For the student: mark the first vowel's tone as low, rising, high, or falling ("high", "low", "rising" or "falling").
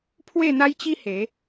falling